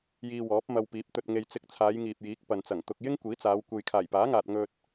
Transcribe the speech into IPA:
jiː˧wɔː˨˥p̚mɐ˧wpiː˨˥p̚ t̪ɵ˨t̚ŋe˨j t͡sɪ˧k̚t͡sʰaː˨˧j ŋiː˨p̚jiː˨˥k̚ pɐ˨nt͡sɐ˨˩ŋ t̪ʊ˨k̚jɪ˥ŋ kʷiː˨˥t͡saː˨˧w kʷe˨jkʰaː˨˩jpaː˨˥ŋaː˨t̚ ŋɵ˧t̚

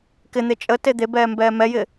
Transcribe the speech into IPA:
kɪn̪e t͡ʃʼəte d̪ebɛːmbɛː mɛjɪ

